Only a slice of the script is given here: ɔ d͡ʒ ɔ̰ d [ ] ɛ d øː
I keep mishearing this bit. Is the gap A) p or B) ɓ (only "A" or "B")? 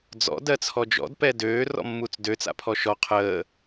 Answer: A